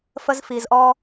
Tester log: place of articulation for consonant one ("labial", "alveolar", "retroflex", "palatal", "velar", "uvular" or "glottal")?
labial